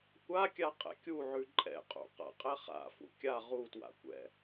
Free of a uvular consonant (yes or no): no